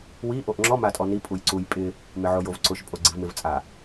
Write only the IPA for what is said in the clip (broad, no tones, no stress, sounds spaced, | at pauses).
w i ʔ o ʔ ŋ͡ǁ ɔ m a tʼ ɔ n i pʼ u j ǀ u j pʼ ɪ | m ɪ ʕ o j o v ǀ ʊ ʃ pʼ o ɡ͡ǀ i v m ɪ v t͡sʼ a